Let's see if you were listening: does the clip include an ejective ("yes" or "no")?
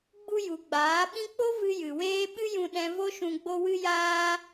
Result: no